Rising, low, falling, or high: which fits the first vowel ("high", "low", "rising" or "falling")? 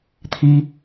high